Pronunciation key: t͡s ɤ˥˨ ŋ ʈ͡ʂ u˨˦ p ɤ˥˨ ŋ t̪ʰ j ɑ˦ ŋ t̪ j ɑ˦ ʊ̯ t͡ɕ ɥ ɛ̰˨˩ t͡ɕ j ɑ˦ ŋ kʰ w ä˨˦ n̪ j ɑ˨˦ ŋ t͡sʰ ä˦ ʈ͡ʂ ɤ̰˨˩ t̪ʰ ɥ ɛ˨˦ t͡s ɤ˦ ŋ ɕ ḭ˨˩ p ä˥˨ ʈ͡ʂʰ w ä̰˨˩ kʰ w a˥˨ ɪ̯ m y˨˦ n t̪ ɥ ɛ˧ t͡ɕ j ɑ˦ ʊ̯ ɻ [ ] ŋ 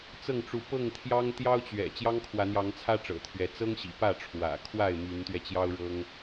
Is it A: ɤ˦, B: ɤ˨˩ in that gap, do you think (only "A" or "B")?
A